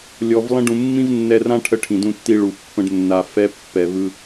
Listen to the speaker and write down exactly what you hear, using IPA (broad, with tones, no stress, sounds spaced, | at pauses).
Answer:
lʲ ɔ˨ v lˠ ə̃˧ ɖ ũ˨ mː ĩ˦ v nː ɛ˧ r ã˦ ʈʰ ə˧ ʈʰ ĩ˨ d ũ˧ tː i˧ ɭ u˨ pː ə̃˦ ɖ nː a˧ f ɛ˦ pː ɛ˧ v ɯ˧